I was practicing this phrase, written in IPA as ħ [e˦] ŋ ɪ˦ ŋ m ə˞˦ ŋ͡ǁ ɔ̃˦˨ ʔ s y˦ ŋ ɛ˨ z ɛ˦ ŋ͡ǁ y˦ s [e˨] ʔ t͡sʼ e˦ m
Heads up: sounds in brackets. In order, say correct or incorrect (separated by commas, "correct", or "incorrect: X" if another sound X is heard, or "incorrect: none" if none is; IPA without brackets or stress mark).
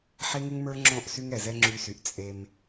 correct, incorrect: y˨